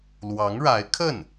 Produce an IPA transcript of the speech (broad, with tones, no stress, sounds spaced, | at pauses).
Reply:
l w ɑ˧˥ ŋ ɻ a˧˥ ɪ̯ kʰ ə˥˩ n